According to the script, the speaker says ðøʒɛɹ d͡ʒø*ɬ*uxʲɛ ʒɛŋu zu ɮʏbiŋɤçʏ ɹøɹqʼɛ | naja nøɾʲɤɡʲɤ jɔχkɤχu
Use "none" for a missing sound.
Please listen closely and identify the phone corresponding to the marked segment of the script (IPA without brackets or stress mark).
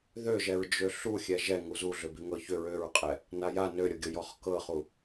ɬ